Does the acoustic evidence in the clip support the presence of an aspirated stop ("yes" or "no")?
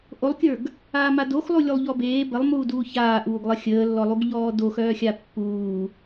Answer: no